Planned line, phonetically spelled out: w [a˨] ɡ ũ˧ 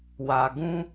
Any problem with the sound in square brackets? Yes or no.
no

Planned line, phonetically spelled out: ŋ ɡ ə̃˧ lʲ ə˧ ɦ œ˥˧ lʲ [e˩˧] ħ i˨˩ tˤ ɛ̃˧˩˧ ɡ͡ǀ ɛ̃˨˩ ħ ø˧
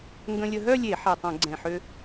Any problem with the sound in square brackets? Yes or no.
yes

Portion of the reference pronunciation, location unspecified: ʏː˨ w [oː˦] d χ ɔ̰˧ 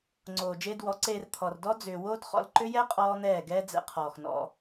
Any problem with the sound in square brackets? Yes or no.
no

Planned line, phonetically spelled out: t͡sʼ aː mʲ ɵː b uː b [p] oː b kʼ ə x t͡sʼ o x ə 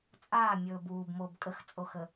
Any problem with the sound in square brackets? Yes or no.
yes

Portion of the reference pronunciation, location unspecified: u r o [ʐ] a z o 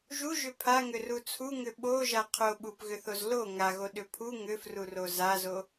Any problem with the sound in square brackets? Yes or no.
yes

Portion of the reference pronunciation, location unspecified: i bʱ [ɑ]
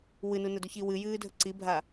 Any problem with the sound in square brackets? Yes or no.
yes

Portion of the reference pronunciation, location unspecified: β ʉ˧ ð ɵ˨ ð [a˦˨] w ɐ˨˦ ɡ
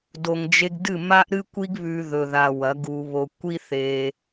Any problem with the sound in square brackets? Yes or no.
yes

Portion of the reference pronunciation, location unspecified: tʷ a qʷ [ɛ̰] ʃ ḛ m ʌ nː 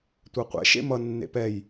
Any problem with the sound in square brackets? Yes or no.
no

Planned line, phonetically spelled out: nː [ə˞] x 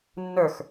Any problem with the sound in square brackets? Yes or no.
no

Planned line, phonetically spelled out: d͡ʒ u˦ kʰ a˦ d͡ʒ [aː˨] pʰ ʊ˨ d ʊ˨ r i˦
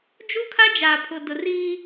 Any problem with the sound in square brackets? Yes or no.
no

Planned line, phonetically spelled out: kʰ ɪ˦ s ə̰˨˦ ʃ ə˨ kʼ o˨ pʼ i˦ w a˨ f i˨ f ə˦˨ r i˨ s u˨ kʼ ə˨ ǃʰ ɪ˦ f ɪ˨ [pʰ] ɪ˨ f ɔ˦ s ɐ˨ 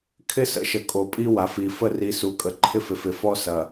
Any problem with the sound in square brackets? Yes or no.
yes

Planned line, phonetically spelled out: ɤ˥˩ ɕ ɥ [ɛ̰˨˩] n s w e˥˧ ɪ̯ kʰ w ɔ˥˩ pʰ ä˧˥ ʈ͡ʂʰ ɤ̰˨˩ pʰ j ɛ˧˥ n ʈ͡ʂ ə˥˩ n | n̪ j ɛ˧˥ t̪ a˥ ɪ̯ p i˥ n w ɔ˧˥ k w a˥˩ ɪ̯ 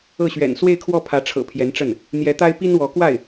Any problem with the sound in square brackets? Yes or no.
no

